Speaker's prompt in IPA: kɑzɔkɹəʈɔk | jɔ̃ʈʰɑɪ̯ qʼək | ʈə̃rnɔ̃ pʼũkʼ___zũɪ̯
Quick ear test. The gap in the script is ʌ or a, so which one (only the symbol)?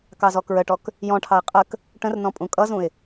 ʌ